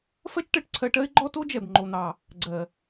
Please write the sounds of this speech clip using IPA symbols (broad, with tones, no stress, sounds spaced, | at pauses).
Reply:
f ɜ˦ t͡ʃ ʈ ɜ˨ ʈ ǀʰ ɜ˧ ʈ ɜ˦ ɪ̯ ɡ͡ǃ ɔ˦ t o˦ d͡ʒ ɛ˨ b ŋ͡ǃ o˨ n̪ ɑ˨ | ɡ͡ǀ ɜ˨